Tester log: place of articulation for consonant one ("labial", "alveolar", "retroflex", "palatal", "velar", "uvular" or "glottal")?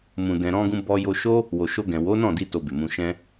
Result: labial